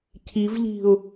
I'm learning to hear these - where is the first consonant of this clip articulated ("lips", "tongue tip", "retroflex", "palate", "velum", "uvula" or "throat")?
palate